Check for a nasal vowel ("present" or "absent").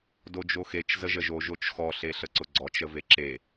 absent